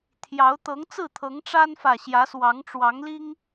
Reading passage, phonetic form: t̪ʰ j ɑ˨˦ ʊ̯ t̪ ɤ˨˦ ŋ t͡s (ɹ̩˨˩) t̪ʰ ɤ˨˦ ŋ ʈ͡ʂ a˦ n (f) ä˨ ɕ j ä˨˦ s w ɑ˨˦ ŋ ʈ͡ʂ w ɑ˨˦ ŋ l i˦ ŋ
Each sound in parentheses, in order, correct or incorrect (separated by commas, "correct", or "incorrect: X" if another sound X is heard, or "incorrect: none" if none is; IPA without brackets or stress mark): incorrect: ɹ̩˥˨, correct